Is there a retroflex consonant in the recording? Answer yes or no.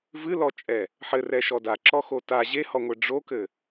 yes